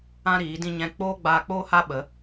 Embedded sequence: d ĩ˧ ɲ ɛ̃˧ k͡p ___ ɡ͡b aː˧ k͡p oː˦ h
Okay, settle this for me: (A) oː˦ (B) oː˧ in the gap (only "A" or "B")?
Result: A